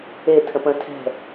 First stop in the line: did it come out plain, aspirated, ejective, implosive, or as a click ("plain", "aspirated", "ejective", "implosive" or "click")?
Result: aspirated